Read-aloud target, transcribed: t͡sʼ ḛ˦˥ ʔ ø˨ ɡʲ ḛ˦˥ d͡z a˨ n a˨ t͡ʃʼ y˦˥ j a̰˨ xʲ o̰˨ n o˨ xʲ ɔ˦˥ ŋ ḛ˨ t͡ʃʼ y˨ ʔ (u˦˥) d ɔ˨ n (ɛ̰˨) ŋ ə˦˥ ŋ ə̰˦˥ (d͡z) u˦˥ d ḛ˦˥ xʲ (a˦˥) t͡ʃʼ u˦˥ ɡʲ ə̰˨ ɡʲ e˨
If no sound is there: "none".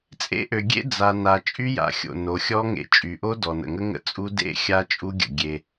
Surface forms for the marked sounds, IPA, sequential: o˦˥, ə̰˨, t͡sʼ, a˦˥

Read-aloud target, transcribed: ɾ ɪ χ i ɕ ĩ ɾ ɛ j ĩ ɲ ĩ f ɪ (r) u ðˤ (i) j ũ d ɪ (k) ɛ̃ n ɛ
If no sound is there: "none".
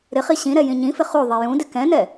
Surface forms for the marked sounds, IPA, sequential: χ, i, k

